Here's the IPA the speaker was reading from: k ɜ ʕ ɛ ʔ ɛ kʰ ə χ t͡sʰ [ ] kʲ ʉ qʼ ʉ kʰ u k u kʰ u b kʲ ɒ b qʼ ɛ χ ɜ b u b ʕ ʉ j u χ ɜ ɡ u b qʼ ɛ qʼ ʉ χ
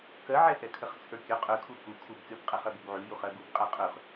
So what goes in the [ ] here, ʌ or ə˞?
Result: ə˞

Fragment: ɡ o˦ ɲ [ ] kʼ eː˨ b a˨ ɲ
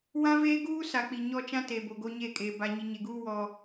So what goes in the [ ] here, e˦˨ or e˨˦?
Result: e˦˨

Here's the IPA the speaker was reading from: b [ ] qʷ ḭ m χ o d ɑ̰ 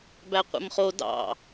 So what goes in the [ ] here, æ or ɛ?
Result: æ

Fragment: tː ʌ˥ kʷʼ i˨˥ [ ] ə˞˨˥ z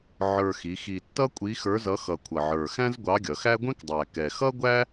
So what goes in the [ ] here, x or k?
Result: x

